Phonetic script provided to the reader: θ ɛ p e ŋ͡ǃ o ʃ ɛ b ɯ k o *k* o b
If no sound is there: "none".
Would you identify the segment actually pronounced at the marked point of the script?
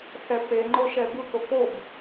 k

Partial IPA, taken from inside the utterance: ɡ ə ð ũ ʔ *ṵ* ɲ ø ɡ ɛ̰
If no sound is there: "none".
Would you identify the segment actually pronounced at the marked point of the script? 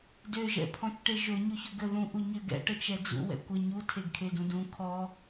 u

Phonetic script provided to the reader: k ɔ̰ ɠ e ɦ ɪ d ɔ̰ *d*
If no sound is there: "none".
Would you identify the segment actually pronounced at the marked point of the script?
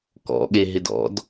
d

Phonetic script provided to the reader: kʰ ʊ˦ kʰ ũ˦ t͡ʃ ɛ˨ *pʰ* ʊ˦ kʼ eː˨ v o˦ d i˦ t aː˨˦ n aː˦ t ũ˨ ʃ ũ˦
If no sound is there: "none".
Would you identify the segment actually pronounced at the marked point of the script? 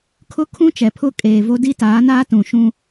pʰ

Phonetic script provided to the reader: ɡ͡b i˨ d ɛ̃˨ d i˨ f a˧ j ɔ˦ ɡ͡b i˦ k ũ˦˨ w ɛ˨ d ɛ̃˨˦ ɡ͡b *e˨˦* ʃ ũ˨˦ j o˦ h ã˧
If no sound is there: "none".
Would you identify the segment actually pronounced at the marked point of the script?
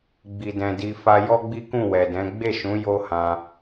e˦˨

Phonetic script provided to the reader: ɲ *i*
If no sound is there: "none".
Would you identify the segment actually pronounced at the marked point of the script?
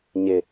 ɪ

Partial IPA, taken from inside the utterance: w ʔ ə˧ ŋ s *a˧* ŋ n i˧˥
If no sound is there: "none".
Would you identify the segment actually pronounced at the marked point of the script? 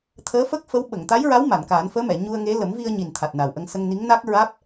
ə˧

